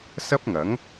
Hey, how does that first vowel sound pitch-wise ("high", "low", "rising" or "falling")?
high